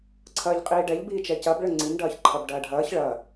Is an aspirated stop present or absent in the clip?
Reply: present